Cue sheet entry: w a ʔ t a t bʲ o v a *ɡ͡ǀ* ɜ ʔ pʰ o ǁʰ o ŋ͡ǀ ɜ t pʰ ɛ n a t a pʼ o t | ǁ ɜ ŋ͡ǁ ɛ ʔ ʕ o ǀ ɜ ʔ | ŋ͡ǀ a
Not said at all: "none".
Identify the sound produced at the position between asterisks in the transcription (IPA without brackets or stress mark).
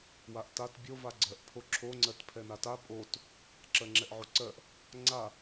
ɡ͡ǀ